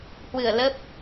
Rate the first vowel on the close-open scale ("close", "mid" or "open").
close